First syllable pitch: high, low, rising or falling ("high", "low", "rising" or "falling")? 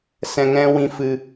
low